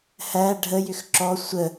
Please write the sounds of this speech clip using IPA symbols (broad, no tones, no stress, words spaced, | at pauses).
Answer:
hæ ɖʱəjʏx ǁɔ sʷə